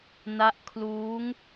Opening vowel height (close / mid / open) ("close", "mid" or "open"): open